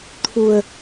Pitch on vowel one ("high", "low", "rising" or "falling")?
low